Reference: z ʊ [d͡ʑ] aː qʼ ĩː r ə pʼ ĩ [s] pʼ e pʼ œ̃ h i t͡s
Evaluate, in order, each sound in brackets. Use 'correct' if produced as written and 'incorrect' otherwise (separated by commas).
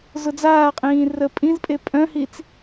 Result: incorrect, incorrect